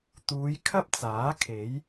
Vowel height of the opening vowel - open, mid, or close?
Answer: close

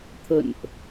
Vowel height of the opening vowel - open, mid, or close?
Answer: mid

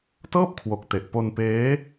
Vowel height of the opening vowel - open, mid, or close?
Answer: mid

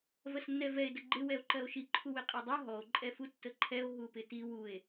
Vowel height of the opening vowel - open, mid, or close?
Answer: mid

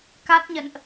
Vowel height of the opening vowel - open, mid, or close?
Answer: open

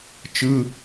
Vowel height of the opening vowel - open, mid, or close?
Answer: close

